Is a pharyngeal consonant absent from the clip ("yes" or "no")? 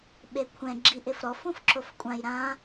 yes